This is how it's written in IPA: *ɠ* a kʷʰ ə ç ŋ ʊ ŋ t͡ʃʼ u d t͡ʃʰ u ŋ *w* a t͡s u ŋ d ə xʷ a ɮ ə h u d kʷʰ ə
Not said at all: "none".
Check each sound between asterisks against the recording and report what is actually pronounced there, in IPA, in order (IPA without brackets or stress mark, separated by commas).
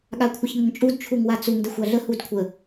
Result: ɠ, w